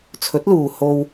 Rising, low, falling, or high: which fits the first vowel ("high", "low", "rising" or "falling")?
rising